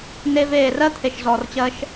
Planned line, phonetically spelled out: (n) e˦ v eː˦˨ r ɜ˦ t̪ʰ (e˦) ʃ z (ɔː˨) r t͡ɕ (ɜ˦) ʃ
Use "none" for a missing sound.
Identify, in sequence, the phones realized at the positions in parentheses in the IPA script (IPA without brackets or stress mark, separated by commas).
n, e˨, ɔː˨, ɜ˦